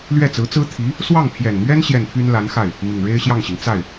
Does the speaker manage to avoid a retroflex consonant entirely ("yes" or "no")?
no